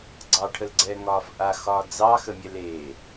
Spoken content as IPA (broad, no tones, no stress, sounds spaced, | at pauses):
ɡ͡ǀ ɑ ʈʰ ə l ɡ͡ǀ ɛː ŋ ɒː f ʔ a x ɒː d͡z ɑ x ə mʲ ɛ l e